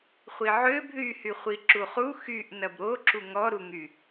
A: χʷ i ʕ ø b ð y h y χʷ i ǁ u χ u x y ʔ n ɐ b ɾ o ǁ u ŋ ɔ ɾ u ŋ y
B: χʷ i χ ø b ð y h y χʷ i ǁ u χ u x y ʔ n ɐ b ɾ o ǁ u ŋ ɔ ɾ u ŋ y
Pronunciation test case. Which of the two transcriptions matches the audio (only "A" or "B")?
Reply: A